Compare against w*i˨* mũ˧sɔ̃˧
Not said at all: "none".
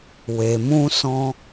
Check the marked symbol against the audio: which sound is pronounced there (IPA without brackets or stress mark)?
e˨